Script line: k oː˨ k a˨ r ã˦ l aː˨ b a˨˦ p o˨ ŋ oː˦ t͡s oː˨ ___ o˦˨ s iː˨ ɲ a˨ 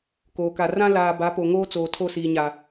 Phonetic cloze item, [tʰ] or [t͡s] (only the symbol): tʰ